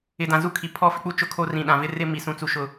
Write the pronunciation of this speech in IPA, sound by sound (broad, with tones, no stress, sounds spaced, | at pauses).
ɪ˨ d ã˨ z u˦ kʰ i˨ pʰ ɔ˦ f ɪ˦ k͡p u˦ t͡ʃ ʊ˦ kʰ o˦ r ĩ˨ ɗ ã˨ v ɪ˦ r ɪ˦ m i˨ s ũ˦ t͡s u˦ ʃ ʊ˦˨